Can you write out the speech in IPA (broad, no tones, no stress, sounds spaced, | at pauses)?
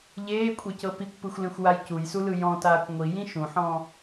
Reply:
ʎ eː kʷʼ e c ɤ p i kʷ p ɯ xʷ l ẽ xʷ w a j c u j s u l ɯ j ɔ̃ t aː kʷ ŋʷ i j ĩ ʃ ũ ħ ɔ̃ː